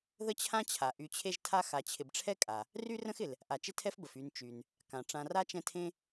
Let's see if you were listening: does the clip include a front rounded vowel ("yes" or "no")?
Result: yes